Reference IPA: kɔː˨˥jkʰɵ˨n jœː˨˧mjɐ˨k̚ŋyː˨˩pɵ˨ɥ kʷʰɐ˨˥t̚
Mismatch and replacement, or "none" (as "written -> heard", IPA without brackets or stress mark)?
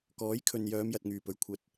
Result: k̚ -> t̚